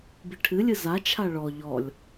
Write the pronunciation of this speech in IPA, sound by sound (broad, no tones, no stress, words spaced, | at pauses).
biʈʰɨlʲɨ zat͡ʃʰa ɭɔ ʎɔlʲ